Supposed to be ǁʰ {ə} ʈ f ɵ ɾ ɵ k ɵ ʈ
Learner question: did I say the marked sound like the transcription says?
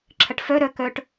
yes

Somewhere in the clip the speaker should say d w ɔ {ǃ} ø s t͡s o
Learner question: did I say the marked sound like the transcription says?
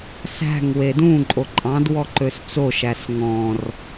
yes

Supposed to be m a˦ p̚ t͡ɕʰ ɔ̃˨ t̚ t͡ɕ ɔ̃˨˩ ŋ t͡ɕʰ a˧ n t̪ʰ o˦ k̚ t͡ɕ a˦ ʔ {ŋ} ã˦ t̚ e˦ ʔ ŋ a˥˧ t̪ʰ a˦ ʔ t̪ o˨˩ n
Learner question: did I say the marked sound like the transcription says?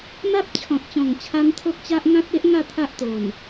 yes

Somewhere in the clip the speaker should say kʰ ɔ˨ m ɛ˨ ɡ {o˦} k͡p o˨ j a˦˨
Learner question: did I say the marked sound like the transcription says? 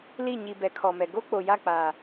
yes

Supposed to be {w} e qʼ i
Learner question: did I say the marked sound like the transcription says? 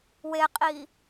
yes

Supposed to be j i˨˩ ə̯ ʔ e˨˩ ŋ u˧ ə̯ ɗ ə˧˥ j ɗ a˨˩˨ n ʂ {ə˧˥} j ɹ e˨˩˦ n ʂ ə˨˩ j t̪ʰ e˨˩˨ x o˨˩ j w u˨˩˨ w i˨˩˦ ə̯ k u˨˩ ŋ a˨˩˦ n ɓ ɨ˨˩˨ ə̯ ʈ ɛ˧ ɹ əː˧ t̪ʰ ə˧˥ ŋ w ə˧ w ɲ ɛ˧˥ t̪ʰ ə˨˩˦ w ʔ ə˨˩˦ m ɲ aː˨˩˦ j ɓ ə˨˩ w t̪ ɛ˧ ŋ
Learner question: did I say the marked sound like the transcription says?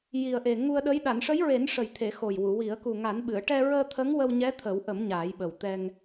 yes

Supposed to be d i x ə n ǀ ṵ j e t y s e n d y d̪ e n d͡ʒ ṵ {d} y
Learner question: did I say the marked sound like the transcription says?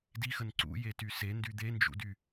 yes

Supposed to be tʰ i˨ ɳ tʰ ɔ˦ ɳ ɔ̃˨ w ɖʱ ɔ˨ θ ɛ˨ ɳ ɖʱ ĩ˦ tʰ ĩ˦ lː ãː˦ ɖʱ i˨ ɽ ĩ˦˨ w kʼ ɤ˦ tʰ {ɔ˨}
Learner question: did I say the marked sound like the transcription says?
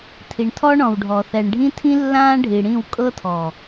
yes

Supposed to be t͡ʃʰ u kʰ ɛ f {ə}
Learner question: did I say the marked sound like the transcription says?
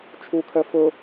no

